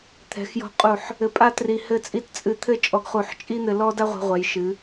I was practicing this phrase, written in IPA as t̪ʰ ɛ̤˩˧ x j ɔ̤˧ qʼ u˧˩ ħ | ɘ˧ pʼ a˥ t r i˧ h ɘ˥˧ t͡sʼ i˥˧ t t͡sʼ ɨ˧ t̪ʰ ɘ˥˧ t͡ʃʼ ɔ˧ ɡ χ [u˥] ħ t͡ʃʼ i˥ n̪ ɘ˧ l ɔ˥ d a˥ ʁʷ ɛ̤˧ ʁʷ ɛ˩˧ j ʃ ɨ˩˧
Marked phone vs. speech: incorrect: u˧˩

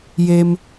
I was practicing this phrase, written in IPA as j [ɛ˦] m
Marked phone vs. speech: incorrect: e˦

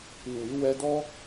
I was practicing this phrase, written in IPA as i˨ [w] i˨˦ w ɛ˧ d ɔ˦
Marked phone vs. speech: correct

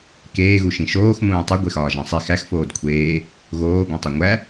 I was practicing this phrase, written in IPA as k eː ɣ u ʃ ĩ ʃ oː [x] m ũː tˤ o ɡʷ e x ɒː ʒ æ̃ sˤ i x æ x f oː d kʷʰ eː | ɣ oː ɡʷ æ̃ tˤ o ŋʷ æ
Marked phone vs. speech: correct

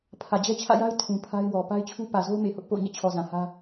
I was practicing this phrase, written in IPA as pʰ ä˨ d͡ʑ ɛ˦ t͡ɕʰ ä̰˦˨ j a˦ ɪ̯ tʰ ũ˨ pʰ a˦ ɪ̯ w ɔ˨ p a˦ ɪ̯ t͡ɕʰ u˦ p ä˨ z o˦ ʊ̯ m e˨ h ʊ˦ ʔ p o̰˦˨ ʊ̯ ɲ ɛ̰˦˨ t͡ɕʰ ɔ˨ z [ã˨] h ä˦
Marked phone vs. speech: correct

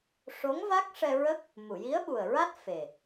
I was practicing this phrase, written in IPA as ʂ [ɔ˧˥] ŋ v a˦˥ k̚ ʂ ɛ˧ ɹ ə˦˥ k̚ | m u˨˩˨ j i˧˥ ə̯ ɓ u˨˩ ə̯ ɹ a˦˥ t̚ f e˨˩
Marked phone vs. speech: incorrect: o˧˥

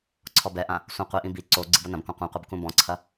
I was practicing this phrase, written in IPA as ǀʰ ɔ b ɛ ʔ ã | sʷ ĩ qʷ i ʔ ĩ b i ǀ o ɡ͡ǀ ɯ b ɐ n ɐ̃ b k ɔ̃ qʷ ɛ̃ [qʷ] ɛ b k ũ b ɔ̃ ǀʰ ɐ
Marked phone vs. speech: correct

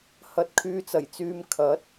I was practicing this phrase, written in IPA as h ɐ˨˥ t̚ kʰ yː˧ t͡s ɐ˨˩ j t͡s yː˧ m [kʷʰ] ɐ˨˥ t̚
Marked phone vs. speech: incorrect: kʰ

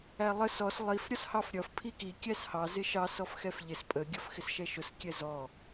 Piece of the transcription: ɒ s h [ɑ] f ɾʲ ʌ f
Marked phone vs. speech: correct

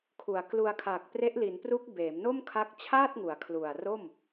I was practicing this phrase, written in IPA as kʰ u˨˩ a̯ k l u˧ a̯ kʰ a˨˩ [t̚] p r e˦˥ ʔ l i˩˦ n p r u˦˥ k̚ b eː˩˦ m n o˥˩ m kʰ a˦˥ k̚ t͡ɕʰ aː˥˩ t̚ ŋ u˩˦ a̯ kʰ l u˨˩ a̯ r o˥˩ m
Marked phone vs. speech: incorrect: k̚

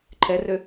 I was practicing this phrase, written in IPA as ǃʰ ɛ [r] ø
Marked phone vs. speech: correct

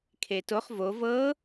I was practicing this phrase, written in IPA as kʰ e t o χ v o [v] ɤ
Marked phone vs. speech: correct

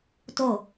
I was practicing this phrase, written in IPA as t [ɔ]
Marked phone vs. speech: incorrect: o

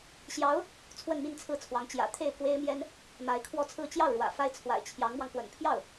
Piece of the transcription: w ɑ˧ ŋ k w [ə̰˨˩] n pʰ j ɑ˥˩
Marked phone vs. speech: correct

